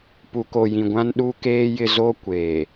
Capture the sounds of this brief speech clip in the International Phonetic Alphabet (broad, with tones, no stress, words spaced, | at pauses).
pu˨ko˨jĩ˨ɡʷã˦n ɗu˦keː˦jɪ˦ zo˦kʷeː˨